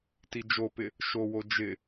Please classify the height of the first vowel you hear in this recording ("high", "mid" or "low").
high